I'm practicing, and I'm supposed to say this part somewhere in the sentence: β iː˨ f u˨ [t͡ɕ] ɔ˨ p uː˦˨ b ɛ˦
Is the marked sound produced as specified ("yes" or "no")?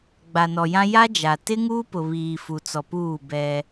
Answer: no